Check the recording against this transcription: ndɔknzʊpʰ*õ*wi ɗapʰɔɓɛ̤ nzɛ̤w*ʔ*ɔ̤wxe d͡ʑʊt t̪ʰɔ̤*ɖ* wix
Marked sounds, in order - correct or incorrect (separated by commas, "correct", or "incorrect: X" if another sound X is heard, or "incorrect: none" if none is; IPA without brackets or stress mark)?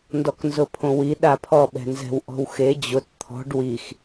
correct, correct, correct